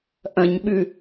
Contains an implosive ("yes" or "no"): yes